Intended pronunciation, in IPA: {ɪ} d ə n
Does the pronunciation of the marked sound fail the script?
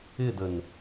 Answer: no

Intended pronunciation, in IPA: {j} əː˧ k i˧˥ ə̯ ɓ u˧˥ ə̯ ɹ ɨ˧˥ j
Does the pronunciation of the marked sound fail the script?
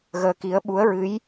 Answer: yes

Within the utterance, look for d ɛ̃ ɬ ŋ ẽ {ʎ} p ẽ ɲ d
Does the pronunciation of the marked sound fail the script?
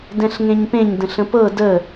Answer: yes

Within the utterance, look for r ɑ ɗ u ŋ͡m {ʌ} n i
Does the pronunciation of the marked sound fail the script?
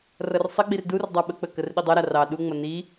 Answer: no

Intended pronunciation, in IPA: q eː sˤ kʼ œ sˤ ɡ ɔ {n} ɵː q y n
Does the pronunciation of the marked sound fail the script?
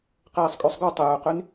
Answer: yes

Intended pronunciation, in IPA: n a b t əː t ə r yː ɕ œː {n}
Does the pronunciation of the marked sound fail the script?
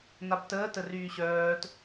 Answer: yes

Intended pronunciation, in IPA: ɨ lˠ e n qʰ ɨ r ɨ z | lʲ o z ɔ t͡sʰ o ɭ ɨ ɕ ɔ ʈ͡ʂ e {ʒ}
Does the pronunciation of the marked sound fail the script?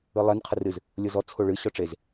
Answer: yes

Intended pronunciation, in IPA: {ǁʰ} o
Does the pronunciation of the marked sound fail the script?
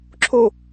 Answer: no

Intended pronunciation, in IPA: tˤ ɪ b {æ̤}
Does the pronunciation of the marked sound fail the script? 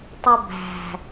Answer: no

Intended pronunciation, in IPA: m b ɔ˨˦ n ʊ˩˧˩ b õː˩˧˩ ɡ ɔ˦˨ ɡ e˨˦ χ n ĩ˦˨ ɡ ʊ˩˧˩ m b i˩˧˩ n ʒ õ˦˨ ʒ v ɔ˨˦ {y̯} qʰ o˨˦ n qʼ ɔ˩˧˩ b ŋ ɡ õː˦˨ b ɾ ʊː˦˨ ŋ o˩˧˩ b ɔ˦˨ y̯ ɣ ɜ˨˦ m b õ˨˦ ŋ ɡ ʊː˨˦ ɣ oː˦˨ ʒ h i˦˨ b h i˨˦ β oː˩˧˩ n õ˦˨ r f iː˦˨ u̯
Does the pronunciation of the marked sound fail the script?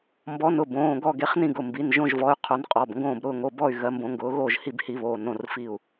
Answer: no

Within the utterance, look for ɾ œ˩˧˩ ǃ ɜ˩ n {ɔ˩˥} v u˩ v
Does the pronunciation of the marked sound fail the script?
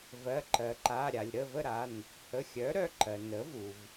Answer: yes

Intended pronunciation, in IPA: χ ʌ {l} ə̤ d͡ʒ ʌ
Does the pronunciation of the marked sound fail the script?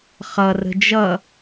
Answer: yes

